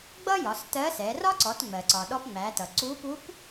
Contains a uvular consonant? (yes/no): no